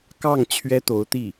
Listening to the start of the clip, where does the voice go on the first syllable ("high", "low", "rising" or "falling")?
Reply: falling